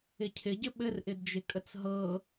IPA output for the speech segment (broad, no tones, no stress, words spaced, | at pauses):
ɪcʰɪɟɘ ɓɘrʔɪdd͡ʒɪkʼət͡s ɦɤ